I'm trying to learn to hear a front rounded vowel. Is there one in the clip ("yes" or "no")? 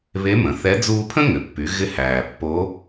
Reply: yes